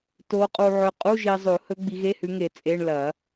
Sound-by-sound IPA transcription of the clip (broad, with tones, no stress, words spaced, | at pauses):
to˨˦qʼu˨ʕɵ˨˦ qʼu˧˥˧ ʒi˨zˤo˨˩˦hɵ˨˦ ɡ͡bi˨˦ɣe˧˥˧hʉ˨˦ŋe˨˩˦ t͡sʼe˧˥˧ɳ lɐ˨˩˦